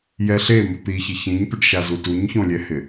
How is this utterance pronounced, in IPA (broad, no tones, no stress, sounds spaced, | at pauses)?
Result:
j ɛ ɬ e m ʊ t̪ i ç ɪ ç ĩ ɲ t̪ ʊ ɖ ʃ a z u t u ɲ ç õ lʲ ɛ h ɪ